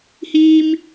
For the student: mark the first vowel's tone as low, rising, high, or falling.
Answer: high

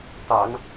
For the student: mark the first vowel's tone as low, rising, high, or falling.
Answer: low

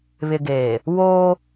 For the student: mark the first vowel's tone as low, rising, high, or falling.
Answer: low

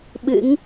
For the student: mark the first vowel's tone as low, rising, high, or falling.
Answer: rising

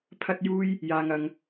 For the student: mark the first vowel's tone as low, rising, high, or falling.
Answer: high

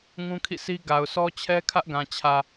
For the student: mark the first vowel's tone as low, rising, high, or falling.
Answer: high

